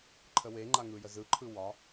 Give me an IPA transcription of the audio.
ǃʰəweŋ͡ǃa ŋɯjəzɯǃʰɯ wɒ

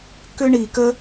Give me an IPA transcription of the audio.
kʏ˥ɳi˩kə˥

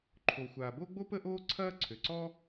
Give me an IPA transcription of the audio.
ǃʰo˩xʷaː˩bo˥ɡ͡bo˥ pə˥ʔoː˥ǀʰɐː˥ ǀʰø˩ǀɔ˥

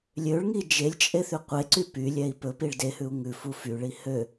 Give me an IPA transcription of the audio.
lʲøɭŋi d͡ʒelʲt͡ʃʼeθy qʷeǀy pylʲɛi̯ pɵpiɭ dehʉu̯ ŋʉfu fyɭi hø

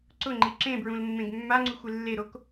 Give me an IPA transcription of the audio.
ǀʊŋ͡ǃi ǁẽbɹũlmːẽɡ mːaŋ͡ǀuxʷɪ lːeɾok

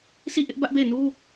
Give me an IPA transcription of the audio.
sʰi˦˨ʔɪ˦ʔ bä˦ʔbe˦˨ɪ̯ nu˦

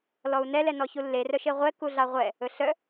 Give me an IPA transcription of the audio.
lɔu̯nɛlɛ nɔçulːerœ ʃeʁʷɛ kuɮɑʁʷɛ | ɵɬœ

